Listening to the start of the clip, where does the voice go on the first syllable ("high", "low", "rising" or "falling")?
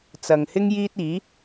low